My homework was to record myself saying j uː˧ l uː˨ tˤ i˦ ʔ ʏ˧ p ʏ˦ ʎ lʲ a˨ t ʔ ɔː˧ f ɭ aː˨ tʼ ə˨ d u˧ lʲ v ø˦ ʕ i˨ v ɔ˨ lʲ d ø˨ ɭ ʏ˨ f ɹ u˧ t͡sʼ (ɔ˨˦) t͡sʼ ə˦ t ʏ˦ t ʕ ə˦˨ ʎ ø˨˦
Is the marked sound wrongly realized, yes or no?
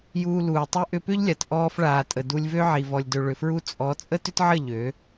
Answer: no